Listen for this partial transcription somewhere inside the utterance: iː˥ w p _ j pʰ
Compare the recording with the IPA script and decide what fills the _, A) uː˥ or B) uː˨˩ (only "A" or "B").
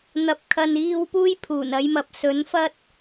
A